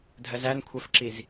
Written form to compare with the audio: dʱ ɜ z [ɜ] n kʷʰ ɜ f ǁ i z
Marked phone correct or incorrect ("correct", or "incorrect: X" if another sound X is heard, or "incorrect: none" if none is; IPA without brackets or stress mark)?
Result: incorrect: æ